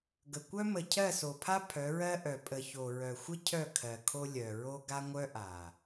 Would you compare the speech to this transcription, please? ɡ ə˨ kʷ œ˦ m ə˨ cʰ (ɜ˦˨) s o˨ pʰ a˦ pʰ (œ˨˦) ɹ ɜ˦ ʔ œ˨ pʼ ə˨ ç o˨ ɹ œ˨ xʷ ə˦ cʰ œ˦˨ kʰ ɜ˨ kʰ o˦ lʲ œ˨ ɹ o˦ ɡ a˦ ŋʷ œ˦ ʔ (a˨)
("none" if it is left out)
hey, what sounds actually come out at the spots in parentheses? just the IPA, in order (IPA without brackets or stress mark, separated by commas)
ɜ˦˨, œ˨˦, a˨